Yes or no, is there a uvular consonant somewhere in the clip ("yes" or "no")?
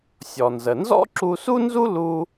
no